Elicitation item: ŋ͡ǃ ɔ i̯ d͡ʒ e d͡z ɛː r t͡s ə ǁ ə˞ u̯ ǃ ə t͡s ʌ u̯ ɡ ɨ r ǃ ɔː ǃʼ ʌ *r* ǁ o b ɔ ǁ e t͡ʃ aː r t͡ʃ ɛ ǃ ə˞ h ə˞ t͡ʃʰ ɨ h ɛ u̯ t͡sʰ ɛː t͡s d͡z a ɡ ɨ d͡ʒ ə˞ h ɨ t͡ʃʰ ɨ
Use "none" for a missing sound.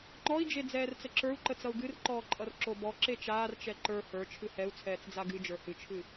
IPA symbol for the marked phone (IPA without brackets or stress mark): r